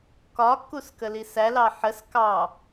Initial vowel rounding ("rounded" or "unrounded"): rounded